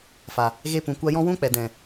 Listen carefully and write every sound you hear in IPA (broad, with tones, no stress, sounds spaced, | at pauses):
f a˨ | ɣ e˧ p ũ˨ kʷ a˧ j ɔ̃˦ w ũ˦ k͡p ɛ˨ d ɛ̃˨